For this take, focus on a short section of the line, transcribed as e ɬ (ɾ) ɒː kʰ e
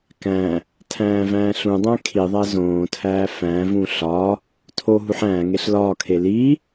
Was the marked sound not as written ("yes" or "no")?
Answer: yes